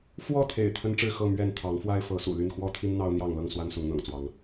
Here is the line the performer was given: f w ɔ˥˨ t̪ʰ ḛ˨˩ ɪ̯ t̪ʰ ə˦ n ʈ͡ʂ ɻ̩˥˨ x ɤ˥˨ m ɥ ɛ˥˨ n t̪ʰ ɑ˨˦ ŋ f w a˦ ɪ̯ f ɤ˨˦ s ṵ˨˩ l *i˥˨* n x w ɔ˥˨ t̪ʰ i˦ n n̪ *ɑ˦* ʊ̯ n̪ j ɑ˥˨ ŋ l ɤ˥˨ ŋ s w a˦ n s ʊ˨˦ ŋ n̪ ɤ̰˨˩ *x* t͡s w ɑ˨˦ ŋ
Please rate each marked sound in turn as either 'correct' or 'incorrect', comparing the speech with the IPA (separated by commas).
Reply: incorrect, correct, incorrect